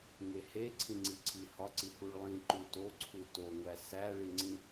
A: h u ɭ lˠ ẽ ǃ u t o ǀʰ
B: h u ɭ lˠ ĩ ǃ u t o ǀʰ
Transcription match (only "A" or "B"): B